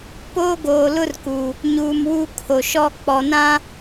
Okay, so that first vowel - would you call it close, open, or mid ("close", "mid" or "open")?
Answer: mid